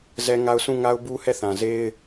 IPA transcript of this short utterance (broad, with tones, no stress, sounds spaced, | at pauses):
z ɛ˦ ŋ a˦ ʊ̯ s ũ˦˨ ŋ a˦ ʊ̯ b u˦ h ɛ˦˨ θ ã˨ z e˦ ɪ̯